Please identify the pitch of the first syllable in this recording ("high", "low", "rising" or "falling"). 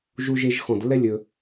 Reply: high